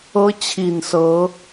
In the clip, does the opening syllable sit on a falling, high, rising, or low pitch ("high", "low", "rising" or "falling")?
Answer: high